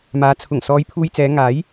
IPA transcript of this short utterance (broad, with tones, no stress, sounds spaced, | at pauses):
m aː˨ t͡sʰ ʊ˨˩ ŋ s ɔː˨˧ j pʰ uː˧ j t͡s ɛː˨˧ ŋ aː˨˥ j